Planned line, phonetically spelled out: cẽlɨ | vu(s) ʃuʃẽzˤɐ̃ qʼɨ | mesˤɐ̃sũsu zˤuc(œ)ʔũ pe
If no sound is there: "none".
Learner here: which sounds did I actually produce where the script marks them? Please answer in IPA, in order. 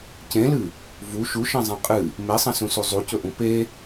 none, ɵ

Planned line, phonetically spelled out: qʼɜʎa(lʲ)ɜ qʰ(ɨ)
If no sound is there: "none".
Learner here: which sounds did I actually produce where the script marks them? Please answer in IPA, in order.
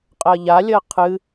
lʲ, ɨ

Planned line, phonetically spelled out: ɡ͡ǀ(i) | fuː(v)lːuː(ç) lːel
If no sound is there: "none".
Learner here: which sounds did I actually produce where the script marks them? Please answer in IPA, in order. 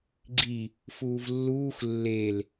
i, v, x

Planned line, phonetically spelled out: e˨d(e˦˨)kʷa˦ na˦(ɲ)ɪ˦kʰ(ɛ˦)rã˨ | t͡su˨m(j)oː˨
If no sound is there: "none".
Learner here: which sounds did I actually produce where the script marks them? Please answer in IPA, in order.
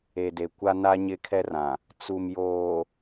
e˨, ɲ, ɛ˦, j

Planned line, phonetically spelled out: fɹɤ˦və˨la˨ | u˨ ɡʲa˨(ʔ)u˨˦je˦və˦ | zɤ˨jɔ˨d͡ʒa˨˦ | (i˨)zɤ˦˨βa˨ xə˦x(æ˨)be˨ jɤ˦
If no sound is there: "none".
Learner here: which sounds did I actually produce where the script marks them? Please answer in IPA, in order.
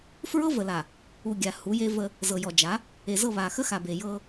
h, e˨, a˨

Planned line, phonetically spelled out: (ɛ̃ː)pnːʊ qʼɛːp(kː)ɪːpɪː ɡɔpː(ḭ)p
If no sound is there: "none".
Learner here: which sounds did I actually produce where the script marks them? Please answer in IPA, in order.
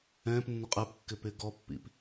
ɛ̃ː, kː, ḭ

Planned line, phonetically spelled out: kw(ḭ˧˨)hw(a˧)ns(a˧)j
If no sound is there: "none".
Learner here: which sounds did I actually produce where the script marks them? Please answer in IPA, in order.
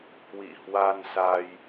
ḭ˧˨, a˧, a˧

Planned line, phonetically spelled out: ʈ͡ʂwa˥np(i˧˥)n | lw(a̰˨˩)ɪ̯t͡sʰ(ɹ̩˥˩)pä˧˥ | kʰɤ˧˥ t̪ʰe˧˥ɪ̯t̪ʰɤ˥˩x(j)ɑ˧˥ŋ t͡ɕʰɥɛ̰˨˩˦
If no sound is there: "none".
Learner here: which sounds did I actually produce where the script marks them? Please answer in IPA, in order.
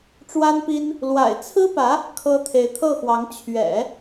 i˥, a̰˨˩, ɹ̩˥, w

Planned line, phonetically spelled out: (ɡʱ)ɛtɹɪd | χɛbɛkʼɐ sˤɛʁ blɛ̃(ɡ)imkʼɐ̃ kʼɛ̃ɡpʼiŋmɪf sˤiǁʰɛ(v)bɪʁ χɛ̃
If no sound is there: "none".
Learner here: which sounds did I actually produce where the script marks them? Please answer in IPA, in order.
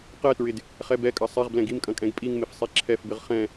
q, ɡ, f

